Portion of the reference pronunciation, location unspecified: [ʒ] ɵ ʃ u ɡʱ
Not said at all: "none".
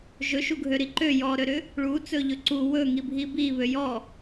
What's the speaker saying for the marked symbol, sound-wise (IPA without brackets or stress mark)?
ʒ